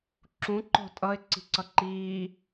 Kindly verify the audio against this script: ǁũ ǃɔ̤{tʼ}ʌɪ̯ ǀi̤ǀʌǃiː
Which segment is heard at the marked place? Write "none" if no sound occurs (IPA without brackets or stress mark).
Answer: tʼ